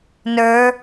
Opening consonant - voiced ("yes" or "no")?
yes